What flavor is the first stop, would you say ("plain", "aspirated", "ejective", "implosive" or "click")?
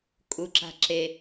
ejective